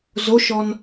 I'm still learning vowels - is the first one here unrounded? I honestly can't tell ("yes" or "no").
no